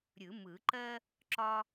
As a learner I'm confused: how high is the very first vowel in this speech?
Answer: high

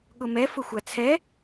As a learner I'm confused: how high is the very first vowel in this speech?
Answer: high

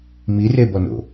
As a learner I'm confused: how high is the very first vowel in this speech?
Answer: high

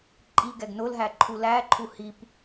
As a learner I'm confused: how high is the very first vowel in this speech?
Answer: high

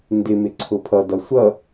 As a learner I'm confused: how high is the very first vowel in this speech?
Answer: high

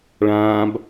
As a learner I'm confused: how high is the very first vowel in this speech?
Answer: low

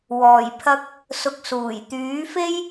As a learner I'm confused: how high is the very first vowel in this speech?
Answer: mid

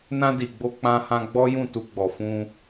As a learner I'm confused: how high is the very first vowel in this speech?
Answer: low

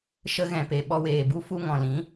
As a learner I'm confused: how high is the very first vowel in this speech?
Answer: mid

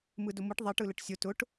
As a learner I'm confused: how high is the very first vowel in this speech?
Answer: high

